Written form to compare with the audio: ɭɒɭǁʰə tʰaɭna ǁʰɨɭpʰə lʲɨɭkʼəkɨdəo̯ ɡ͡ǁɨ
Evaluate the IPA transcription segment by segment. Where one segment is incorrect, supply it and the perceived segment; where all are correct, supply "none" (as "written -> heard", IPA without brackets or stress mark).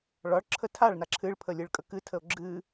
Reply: d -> tʰ